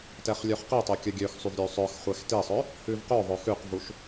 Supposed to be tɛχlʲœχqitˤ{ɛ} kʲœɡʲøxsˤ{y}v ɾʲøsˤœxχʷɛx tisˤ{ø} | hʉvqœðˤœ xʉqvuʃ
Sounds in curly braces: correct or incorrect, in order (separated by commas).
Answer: incorrect, correct, incorrect